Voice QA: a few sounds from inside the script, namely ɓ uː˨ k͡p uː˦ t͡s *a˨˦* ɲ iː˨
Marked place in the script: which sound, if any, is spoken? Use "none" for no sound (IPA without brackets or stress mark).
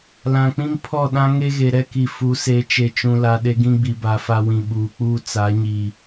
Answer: a˨˦